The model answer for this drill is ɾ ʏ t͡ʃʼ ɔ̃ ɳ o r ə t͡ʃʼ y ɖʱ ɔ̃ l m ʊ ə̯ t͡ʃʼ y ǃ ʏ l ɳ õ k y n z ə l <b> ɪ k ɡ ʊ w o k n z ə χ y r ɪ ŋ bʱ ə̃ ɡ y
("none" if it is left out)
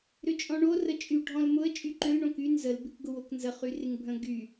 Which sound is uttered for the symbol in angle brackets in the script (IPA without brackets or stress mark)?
b